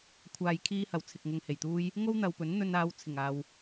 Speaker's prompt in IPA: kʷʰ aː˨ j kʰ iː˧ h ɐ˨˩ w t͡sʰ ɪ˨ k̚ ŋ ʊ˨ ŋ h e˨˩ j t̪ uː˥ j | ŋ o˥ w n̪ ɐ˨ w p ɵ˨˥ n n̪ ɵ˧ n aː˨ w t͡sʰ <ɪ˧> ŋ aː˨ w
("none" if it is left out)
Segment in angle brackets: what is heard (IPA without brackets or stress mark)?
ɪ˨˩